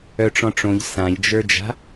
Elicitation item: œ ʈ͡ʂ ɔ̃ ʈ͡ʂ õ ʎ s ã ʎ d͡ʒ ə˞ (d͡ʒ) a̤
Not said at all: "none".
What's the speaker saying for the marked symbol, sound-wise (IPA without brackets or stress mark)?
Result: d͡ʒ